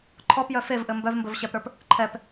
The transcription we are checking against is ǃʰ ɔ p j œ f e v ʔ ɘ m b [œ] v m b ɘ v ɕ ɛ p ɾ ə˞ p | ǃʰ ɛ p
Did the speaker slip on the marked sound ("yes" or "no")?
no